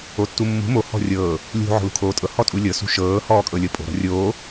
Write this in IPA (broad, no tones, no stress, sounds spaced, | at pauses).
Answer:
o tː u mː ṳ m o h ɔ̤ rʲ ɤː | lʲ ṳ ʕ ɔ̤ l ṳ kʰ oː tʼ ɤ h ɔ tʼ u lʲ ɤ s ṳ ʃ ɤː h ɔː kʼ ɤ lʲ ɤ pʼ o̤ ɾ ɔ̤ rʲ oː